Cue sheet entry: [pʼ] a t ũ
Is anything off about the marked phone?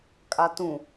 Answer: yes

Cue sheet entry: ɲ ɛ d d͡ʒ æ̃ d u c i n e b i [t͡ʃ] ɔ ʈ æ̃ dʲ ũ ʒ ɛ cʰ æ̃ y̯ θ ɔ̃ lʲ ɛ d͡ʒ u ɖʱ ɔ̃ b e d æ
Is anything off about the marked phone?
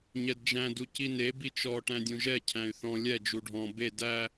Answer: no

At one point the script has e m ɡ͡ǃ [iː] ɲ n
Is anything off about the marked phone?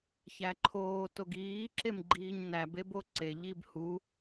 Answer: no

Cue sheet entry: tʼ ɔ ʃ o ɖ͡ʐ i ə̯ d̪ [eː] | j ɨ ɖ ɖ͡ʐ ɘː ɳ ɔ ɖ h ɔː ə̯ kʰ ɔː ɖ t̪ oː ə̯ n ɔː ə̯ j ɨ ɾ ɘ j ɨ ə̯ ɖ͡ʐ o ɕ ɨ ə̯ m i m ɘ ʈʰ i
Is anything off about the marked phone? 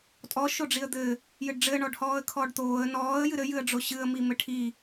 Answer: yes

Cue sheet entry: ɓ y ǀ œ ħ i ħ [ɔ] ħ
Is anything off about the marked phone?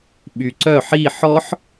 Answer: no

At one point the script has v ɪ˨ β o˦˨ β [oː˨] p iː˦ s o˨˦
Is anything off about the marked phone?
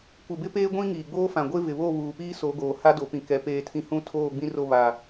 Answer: yes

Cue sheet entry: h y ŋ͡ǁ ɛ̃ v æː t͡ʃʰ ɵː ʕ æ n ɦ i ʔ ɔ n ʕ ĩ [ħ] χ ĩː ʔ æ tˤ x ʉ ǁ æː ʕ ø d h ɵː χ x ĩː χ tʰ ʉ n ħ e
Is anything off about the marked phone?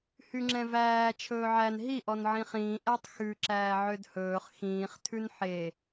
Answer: yes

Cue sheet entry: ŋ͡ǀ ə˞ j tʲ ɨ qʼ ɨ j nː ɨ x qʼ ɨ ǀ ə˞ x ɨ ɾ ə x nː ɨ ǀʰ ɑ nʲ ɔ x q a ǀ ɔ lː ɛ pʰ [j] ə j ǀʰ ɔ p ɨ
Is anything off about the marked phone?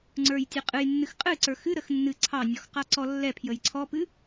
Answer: no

